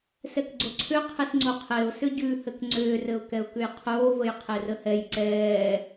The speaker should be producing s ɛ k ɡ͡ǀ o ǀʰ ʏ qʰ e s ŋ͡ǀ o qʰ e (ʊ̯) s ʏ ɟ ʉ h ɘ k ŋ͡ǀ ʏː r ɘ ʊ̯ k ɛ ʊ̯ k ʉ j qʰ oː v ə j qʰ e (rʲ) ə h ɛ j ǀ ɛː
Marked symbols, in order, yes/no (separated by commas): yes, no